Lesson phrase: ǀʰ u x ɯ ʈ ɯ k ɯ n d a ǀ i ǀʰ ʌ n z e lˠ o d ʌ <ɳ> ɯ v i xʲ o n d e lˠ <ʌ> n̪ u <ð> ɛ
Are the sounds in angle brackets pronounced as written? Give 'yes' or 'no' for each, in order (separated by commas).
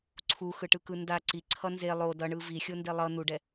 yes, yes, no